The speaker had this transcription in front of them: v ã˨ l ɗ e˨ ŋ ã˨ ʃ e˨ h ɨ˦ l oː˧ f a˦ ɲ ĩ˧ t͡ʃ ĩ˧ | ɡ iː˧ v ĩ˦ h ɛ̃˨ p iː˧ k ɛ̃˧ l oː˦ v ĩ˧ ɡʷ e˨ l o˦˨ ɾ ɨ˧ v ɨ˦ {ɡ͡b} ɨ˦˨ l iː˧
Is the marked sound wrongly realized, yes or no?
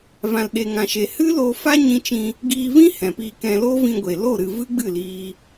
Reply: no